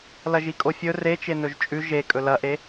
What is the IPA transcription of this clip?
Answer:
lɐʒikʼofʲɵ ret͡ʃenɵʒ t͡ʃʼʉ ʒe kʼɵlɐʔe

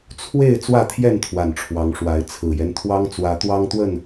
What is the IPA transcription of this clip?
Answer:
t͡sʰwe˥˨ɪ̯ t͡swä˥˨t̪ʰjɛ˥˨nt̪ʰwa˨˩n ʈ͡ʂʰwɑ˨˦ŋʂwa˨˦ɪ̯ t͡sʰɹ̩˨˩jɛ˦nt̪ʰwɑ˦ŋ t͡swä˨˦t̪wɑ˦ŋt̪wə˥˨n

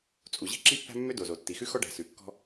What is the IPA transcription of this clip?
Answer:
t͡sʼu˩ʑi̤˥ ǁi˥pːæ̤˥ mːø˥do˩zo˩ tːi˩xʉ˥xɔ˥ɖæ̤˩ sʉ˩kːɔ̤˥

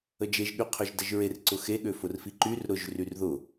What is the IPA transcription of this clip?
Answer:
əd͡ʒeʒ ɠyqʰøʒdəʒɹer ǀʊxe ɠøfʊrfiǃyr ɾʊʒ ryrðʊ

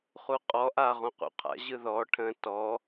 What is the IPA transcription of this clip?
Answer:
χuqʼɔ ʔa ʁũqṵqʰa̰ ʑɯðɔ ʈʰə̃ tɔ

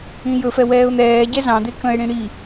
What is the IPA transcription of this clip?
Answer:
ĩjɵfɛ wɛːʊ̯n̪ɛːɟɛ zɑ̃d̪e kə̃ɪ̯ɽĩ ɽi

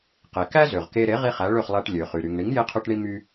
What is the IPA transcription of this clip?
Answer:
qe˩ kæ˥zø˩ʁke˧ ɾe˩˥ʁi˧ χæ˩˥ɭø˥˩χlˠæ˧ʈ lʲø˩χy˩ ɾy˩ŋ ɳi˩˥ŋje˧qʰø˧ʈɳi˧ my˧

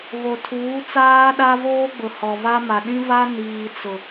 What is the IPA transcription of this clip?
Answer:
βo˨tʰuː˨˦t͡saː˦ ɗa˦voː˦ɡ͡bʊ˨ hɔ˨va˦ ma˨ɗĩ˦va˦ niː˨t͡sʊ˨

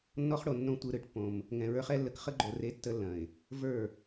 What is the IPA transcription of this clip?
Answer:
nːɔ˦χɽo˨nːõ˦ tʷɯ˨ɾɯ˨ʈpːõ˨m | ŋɛ̃˨ɹə˞˦χɛ˦lːə˦k χə˦ɡ͡ǃo˨ re˦tːə˦lːɐ̃˨ɪ̯ | və˞˦˨

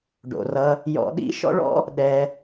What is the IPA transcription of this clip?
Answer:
ɖo̰˨rʌ˧ | jɔ̰˧ɗḭ˦ ʃɔ̰˦ɭɔ̰˦ | ɗɛ˧

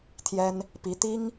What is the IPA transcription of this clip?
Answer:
t̪ʰjɛ˥n | pi˧˥ t̪i˥ŋ

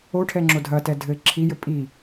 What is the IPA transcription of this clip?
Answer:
oʈʰɛŋ͡ǁo dʱɐtɛ dʱɘ ǁʰijɘ pʼi

